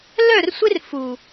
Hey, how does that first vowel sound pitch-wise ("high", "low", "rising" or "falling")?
falling